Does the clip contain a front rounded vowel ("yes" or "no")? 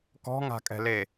no